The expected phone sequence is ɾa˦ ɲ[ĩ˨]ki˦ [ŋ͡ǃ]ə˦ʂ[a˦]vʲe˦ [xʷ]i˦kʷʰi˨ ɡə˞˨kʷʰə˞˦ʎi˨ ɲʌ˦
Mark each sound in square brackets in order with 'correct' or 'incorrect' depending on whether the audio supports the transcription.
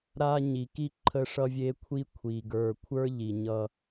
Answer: incorrect, incorrect, incorrect, incorrect

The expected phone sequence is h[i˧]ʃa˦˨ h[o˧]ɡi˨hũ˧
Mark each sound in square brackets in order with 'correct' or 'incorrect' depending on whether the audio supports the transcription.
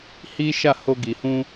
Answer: incorrect, correct

